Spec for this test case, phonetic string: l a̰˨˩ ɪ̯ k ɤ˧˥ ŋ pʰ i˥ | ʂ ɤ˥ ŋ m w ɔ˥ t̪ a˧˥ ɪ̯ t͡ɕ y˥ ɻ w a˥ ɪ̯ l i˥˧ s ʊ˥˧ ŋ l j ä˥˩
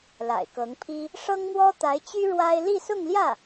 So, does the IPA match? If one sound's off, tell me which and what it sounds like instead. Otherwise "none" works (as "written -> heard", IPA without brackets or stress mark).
none